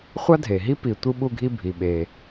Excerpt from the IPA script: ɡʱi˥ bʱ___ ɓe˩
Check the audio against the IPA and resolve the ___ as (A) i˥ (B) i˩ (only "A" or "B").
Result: B